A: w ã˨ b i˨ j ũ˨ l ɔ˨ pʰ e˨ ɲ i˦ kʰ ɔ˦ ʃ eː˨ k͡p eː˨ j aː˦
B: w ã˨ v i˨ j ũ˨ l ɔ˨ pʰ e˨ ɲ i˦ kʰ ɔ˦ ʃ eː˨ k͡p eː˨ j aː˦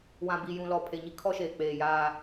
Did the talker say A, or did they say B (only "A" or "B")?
A